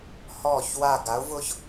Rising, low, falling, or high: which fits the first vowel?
falling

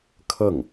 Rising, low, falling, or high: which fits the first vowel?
falling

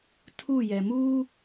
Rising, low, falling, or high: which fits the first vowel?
falling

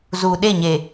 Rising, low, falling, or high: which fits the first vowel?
low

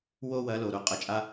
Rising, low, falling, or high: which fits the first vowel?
high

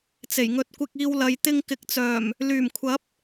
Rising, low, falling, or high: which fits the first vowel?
low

